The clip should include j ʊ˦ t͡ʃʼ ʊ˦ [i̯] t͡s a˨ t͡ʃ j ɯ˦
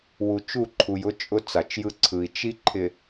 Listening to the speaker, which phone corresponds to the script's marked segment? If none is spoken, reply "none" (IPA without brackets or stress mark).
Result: none